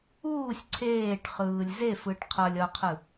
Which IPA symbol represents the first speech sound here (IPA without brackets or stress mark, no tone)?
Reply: uː